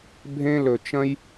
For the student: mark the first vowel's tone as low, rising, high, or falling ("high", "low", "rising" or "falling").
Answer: high